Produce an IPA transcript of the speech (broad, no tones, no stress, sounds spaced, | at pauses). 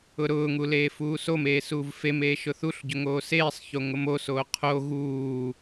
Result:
ʊ ɾ ʊː ŋ u l eː f uː s o m eː s uː v f e m eː ʃ ʊ θ u ɬ ɟ ʊ ŋ oː s eː sˤ ç o ŋ ʊ m o s oː qʰ o ɣ uː